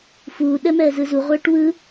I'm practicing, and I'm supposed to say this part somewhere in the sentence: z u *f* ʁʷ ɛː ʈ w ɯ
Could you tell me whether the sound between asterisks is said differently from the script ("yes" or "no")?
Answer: yes